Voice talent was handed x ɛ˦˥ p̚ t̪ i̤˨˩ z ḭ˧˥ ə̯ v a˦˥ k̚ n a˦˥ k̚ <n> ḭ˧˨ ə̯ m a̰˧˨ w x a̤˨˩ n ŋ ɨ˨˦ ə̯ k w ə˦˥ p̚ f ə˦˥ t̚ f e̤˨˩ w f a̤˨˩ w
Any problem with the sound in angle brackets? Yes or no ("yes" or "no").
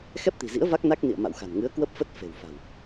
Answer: no